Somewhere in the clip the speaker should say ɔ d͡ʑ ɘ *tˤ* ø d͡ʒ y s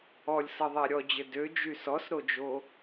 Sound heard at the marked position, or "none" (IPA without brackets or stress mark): d